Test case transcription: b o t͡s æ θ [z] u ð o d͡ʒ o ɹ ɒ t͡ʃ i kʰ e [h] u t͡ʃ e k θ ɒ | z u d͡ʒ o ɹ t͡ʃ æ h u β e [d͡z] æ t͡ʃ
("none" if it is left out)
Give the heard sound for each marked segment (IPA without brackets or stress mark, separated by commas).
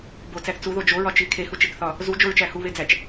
t͡s, h, d͡z